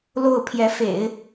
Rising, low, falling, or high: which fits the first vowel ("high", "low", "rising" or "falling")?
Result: falling